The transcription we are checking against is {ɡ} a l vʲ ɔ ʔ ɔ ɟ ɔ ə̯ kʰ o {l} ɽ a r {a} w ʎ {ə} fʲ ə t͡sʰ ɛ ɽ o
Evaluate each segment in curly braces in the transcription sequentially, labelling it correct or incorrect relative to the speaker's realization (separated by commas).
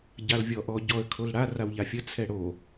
incorrect, correct, correct, incorrect